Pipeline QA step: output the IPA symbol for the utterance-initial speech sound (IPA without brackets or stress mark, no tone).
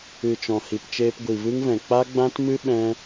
ɨ